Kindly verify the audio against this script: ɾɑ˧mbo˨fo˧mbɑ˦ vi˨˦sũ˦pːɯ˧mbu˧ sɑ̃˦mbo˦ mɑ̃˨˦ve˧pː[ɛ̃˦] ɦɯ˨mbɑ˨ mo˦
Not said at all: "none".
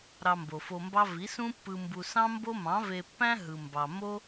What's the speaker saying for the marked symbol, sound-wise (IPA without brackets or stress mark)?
æ̃˦